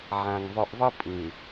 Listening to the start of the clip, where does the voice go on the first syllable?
low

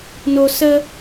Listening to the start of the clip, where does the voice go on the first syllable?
high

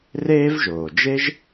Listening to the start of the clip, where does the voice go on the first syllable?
high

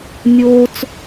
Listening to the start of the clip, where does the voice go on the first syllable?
high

